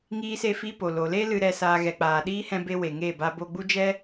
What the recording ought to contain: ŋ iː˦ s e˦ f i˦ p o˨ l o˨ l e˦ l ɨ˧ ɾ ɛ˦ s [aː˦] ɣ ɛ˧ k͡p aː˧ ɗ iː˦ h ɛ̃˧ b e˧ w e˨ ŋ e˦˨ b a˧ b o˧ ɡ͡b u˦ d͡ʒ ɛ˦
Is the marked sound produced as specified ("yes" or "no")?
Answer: yes